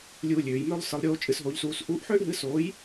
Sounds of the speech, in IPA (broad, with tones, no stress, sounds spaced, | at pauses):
lʲ uː˦ lʲ øː˨˦ j m ø˦ lˠ s ɯ˨˦ lˠ ɾʲ oː˦ t͡ʃʼ ɨ˨˦ s ɦ oː˨˦ ʎ s uː˨˦ s ʔ uː˨˦ ʔ ħ øː˦ ʔ ɦ ɨ˨˦ s oː˨˦ j